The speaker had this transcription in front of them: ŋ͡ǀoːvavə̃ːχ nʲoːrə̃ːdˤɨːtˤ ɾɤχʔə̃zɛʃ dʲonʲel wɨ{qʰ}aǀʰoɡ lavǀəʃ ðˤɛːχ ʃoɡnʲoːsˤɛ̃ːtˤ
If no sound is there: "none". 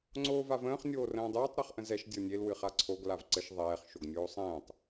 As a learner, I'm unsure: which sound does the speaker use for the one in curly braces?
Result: χ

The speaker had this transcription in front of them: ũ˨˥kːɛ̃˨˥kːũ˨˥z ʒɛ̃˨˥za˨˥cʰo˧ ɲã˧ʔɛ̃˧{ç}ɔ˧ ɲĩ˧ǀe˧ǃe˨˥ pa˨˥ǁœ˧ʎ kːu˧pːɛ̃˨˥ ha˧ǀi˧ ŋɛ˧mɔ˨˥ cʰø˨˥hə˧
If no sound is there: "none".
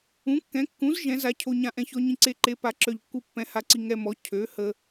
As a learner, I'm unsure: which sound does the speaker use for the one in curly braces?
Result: ç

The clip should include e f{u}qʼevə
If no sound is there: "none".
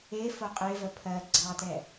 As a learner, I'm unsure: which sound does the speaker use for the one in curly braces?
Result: o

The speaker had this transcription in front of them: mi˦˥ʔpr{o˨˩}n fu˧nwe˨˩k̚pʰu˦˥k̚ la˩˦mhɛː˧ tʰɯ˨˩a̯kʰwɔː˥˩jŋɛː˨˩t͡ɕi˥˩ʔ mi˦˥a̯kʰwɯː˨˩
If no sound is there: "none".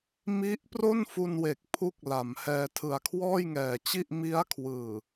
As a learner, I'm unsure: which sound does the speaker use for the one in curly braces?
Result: o˥˩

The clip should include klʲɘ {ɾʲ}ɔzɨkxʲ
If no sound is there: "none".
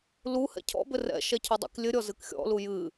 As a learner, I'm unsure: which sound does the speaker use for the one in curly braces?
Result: ɾʲ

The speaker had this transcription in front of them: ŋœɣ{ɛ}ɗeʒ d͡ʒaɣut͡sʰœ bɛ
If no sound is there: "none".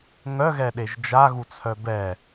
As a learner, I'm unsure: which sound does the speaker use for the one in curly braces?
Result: ɛ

